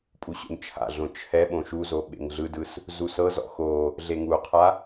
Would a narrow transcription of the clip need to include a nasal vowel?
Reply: yes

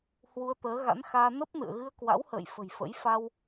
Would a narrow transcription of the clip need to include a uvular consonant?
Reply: no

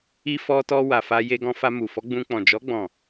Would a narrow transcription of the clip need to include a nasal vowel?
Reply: yes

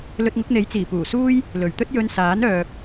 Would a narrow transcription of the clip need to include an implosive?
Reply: no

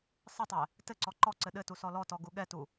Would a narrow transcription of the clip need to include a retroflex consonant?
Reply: no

